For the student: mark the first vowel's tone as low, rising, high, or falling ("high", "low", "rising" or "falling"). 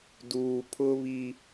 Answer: low